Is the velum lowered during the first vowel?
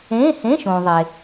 yes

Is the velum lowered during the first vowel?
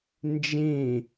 yes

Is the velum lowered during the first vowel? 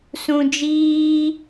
yes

